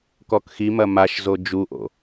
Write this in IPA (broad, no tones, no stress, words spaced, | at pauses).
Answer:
kɔkximɐ maʃzo d͡ʒuʔo̰